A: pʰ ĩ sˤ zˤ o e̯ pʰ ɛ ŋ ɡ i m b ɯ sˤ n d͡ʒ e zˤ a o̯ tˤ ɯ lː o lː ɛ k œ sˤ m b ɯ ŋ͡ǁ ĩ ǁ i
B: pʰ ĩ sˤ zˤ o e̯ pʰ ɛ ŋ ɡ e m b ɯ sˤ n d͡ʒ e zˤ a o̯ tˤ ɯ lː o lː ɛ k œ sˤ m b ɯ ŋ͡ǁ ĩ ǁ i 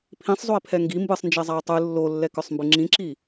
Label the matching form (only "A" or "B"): A